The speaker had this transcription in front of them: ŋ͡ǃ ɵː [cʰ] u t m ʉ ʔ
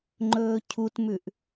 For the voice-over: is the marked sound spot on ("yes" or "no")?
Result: yes